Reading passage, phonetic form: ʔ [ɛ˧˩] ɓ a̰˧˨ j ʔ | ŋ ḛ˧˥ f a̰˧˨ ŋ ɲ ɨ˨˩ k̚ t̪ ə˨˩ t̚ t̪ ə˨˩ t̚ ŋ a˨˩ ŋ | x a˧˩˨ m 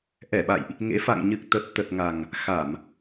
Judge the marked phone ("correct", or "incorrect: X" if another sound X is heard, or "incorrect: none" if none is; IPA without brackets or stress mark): correct